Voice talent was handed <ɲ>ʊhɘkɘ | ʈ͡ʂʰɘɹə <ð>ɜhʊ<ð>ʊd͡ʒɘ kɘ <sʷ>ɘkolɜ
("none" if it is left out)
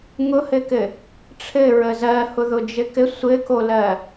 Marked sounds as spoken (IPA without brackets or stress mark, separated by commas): ŋ, z, ð, sʷ